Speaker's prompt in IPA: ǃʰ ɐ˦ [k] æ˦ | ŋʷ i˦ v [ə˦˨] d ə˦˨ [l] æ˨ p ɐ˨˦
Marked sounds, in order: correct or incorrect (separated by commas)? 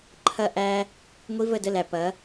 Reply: incorrect, correct, correct